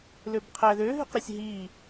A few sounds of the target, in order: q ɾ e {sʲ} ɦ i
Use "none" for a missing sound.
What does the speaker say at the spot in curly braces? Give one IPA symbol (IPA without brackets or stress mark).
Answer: sʲ